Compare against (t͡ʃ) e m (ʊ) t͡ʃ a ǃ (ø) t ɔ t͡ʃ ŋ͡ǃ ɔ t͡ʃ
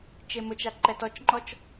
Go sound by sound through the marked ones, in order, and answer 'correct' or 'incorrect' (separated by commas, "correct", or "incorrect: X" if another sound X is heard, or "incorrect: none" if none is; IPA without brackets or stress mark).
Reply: correct, correct, incorrect: ɛ